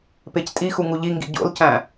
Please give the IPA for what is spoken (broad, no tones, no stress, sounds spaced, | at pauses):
p e c tʼ i x u ŋ u ʎ i ŋ ɡ ḭ ɟ o̰ l c æ̃